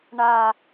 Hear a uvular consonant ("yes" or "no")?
no